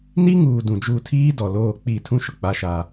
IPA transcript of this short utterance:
n i˦ ŋ uː˨ d ũ˨ d͡ʒ u˦˨ tʰ iː˦ d ɔ˨ l oː˦˨ k͡p i˦˨ tʰ ũ˦ ʃ ʊ˨ k͡p a˦ ʃ a˦

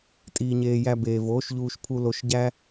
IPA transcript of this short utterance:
tʼ iː˨ ɲ eː˨ j æ˧ b eː˨ v oː˨˦ ʃ ʎ uː˧ ʃ pʰ u˧ l o˧ ʃ ɟ æ˦

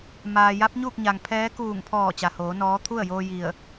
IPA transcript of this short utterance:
m aː˩ j a˧˥ p̚ ɲ uː˥˨ k̚ ɲ a˩ ŋ pʰ ɛː˧˥ k uː˧˩ ŋ pʰ ɔː˧˩ t͡ɕ a˩ h oː˩˧ n ɔː˧˥ t̪ʰ u˥˨ ə̯ j oː˧ j i˧˩ ə̯

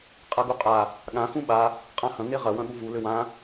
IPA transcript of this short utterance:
qʼ ɐ ɡ u qʼ a | ɠ ã x ũ ɓ a | qʼ ã h ɐ̃ ŋ e ʁ ɐ w ɐ̃ ɠ u v u l ʏ w ã

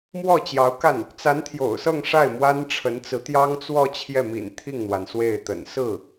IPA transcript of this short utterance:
m w ɔ˥˩ t͡ɕ j ɑ˧˥ ʊ̯ k a˥˩ n | t͡s a˧˥ n t̪ʰ j o̰˨˩ ʊ̯ s ɤ˥˧ ŋ ʂ a˥˩ ɪ̯ m w a˥ n ʈ͡ʂʰ ə˧˥ n t͡s ɹ̩˧˥ t̪ j ɑ˥ ŋ t͡s w ɔ˥˧ t͡ɕʰ j ɛ˥˩ m ḭ˨˩ n t̪ʰ i˥˩ ŋ n̪ w a˩ n s w e˥˩ ɪ̯ t̪ ə̰˨˩ n s ɹ̩˥˩

